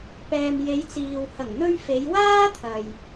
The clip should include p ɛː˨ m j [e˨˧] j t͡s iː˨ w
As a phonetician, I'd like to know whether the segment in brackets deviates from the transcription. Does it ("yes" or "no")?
no